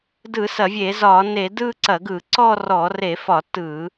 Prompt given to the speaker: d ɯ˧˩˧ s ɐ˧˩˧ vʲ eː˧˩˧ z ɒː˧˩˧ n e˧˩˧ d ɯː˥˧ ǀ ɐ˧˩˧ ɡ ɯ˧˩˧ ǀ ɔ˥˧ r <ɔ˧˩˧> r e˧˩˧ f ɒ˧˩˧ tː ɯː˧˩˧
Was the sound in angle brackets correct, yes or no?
yes